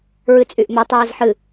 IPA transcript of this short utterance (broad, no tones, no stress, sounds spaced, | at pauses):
ɹ ɨ t͡sʼ y ʔ m ɵ tˤ ɛː z ħ ɨ